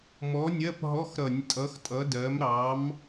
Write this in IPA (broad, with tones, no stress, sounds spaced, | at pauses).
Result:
m ɔ˨˥ nʲ ɜ˧˥˧ p ɦ ɔ˧˥˧ x ɾ ʌ˧˩˧ nʲ tʼ ʌ˨˥ x tʼ ʌ˨˥ d ɜ˨˥ m ɾ ɑ˨˥ m